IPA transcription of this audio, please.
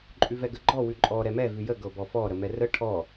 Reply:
ǃʼ ʉ v ɛ ɡ ə ɡ͡ǃ ɔ w ʉ ǃʼ ɔ ɾ ɛ m ɛ v ʉ j ə ɡ ɤ b ɔ f ɔ ɾ ə m ɛ r ə ʈʰ ɔ

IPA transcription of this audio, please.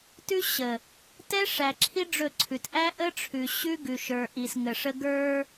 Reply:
t ʉ˦ ɕ ə˨ | t ɛ˦ ʂ æ˨ ǁʰ i˦ ɖ͡ʐ ɵ˦˨ ǀʰ ʉ˨ t ʔ æ˦ ʔ ə˦ ʈ͡ʂʰ ʉ˨ ɕ ʉ˦ ɡ ʉ˨ ʃ ə˞˨ ʔ i˨ s ŋ ə˨ ʂ ə˦ ɡ ə˞˦

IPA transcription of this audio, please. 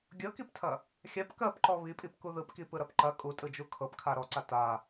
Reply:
ɡʲ ɤ k i p tʰ ɐ | xʲ a p k ɜ p ǃ ɔ β i pʼ i p k u ð ɯ p k i p ɯ ɾ ɐ p ǃ ɐ kʼ u tʼ ɯ d͡ʒ u kʰ ɤ p kʰ a ɾ ɔ ǀ a t a

